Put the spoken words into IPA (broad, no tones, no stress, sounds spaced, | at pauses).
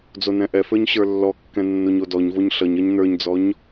d͡z o n ɛ̃ ʔ ɛ f ə˞ ɲ ɕ ə˞ lː ɔ kː ɛ̃ nː o ɲ o d ɔ ɲ v o ɲ ɬ ʌ ɲ ʌ ɲ n ə˞ ɲ d͡z ɔ ɲ